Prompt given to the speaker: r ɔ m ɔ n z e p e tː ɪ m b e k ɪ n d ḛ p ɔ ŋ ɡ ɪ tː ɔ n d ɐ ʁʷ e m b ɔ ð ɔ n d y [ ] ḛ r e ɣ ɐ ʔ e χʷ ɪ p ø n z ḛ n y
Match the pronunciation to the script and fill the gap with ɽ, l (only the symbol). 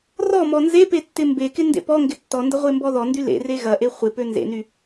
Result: l